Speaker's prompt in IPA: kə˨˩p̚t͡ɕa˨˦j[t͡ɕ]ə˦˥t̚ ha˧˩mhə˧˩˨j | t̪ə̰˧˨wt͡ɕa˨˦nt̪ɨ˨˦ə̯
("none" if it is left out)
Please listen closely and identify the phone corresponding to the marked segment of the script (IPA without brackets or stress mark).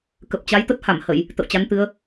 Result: t̪